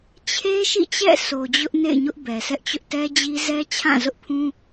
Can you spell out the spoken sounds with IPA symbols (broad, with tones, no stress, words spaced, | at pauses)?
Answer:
t͡ɕʰe˦ ʃḭ˦˨t͡ɕɛ̰˦˨ so˨d͡ʑʊ˦ʔnḛ˦˨ɪ̯ɲʊ˦ʔ bɛ˨sʰɛ˦ʔt͡ɕʊ˦ʔ tɛ˦d͡ʑi˦ zɛ˦t͡ɕʰã˦˨zʊ˦ʔpʰũ˦